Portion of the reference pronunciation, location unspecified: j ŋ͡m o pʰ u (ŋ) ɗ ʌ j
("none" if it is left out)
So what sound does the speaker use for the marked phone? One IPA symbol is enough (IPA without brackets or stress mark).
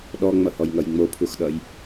x